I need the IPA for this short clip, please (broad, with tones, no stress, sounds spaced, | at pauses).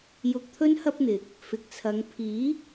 j ʊ˧ k̚ t̪ʰ ɵ˥ n h ɐ˥ p̚ n̪ ɪ˨ k̚ | f ɪ˨ k̚ t͡sʰ ɐ˨˧ ŋ pʰ iː˨˥